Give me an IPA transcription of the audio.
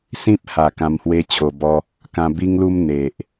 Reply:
s ĩ˦ p̚ h a˨˩ k ã˧ m h w e˦ t͡ɕʰ o˧ b ɔ˦ | k ã˧ b i˦ ŋ l u˦ m n̪ e˨ ʔ

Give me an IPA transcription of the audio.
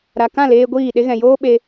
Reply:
ɾ a˨ k ã˦˨ l eː˧ ɡʷ iː˦˨ ɗ e˦ ɣ ɛ̃˨ j oː˦ ɓ e˧

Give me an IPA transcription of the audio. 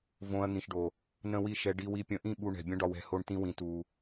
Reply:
v õ˧ ɐ̯ n̪ ĩ˨ ʃ ɖ o˨ | n ə̃˦ w i˦˨ ʃ ɛ˧ ɖ i˧ w i˧ pʲ ə̃˧ ʔ ĩ˦˨ ɓ u˧ ɳ ɛ̤˨ bʲ ə̃˦ ɖ ɒ˧ w ɛ̤˧ h o˧ ɳ t ĩ˧ w ĩ˨ t u˨

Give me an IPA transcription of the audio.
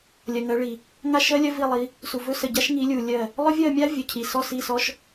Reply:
lʲ ɜ˨ ŋ ɜ˨˦ ɭ i˨ | ŋ a˦˨ ʃ ɜ˦ lʲ ɜ˦ v i˦˨ lˠ i˨˦ | s u˨ v ɵ˦ s ə˨ ɟ a˦ ʃ ŋ i˨˦ lʲ u˨ lʲ ɜ˦˨ | lˠ ʏ˦ vʲ ɜ˦˨ mʲ a˦ vʲ ɵ˨ cʰ i˨ s ɔ˦˨ s i˦˨ s ɔ˦ ʃ

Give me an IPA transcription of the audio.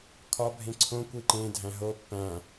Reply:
kʰ ɒ bʱ ẽ ǀʰ õ kʷ i ǃ ẽ dʱ æ̃ ɦ o pː æ̃

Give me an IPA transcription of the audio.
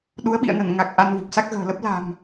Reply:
ɗ u˨˦ ə̯ ɓ ḭ˧˨ ə̯ n ə˧˩ n ŋ a˨˩ k̚ ʔ a˧ n v u˨˩ p̚ s a˦˥ k̚ ɣ ə̤ː˨˩ l ə˦˥ p̚ l a̤˨˩ m

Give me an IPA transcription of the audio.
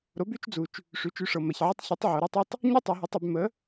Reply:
ɾ o˨˥ b y˨˥ t͡ʃ d͡z u˩˧ t͡ʃ | ʂ y˨˥ t͡ʃ y˨˥ ʂ ɤ˩˧ m ɐ˩˧ ç ʕ ə˥ tˤ ç o˨˥ tˤ ʕ o˩˧ ɾ y˥ tˤ ɐ˥ tˤ | ɲ o˥ tˤ u˩˧ ɦ ə˨˥ tˤ y˩˧ b m ə˨˥

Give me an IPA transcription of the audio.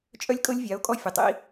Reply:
t͡ʃʼ œ˦ lʲ kʼ ɤ˦ lʲ vʲ a˨˦ o̯ kʼ ɔ˦ fʲ ə˨ tˤ ḭ˦

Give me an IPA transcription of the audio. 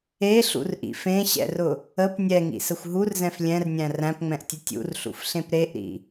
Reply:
e ɬ ṵ r ʔ ḭ f ẽ ɕ ɛ̰ r ʊ | ə p nʲ ɛ ŋ ḭ s ə xʷ ɦ u r z ɛ̃ f lʲ ɛ̃ r nʲ æ̃ r æ̃ p ŋ͡m ɛ̃ ʔ tʲ ʊ tʲ ṵ r ɬ ṵ f ɬ ẽ p ɾ e ʔ ɾ ḭ

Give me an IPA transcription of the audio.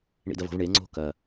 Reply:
ɳ ḭ d ɐ v o̤ v ɳ e ŋ͡ǀ o̤ k ɐ

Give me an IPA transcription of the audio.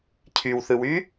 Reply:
cʰ y w θ ɯ w y

